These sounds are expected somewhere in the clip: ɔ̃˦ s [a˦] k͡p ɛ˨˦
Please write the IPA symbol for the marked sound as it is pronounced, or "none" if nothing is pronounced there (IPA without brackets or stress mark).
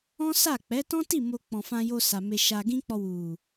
a˦˨